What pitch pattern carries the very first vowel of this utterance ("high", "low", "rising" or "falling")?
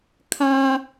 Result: high